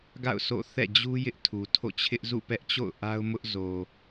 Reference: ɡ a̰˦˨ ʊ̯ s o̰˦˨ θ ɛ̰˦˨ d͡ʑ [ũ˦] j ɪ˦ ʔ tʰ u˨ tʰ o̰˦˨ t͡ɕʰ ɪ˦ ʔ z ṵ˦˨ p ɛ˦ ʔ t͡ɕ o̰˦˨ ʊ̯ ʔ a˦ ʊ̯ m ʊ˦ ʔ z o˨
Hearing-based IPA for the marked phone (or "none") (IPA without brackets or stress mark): u˦